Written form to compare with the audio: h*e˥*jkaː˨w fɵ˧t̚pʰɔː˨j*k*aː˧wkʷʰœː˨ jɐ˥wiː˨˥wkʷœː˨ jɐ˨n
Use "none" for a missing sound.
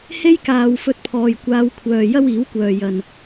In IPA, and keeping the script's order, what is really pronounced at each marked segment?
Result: e˥, kʷ

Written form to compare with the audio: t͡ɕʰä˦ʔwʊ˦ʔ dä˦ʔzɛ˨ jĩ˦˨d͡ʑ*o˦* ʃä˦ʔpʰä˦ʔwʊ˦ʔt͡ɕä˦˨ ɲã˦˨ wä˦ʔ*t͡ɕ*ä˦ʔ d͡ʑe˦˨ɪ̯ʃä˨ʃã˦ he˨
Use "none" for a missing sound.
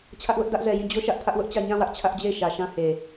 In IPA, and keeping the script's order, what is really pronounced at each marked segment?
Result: o˦, t͡ɕʰ

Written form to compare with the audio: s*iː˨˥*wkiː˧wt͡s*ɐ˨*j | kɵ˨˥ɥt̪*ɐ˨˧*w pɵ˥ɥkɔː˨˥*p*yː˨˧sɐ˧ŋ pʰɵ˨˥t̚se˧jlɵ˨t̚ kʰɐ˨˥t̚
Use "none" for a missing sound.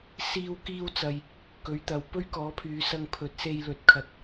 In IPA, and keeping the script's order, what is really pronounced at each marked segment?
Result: iː˧, ɐ˨, ɐ˨, pʰ

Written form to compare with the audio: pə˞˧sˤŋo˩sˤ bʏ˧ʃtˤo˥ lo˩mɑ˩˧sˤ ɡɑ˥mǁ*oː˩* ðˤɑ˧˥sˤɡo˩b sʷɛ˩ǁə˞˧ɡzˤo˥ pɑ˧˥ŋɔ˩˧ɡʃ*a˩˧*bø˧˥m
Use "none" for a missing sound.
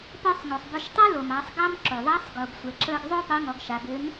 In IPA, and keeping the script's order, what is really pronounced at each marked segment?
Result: o˩, a˩˧

